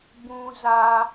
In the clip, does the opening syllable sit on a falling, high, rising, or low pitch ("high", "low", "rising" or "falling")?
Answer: low